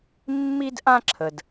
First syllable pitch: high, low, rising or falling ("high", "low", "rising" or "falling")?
high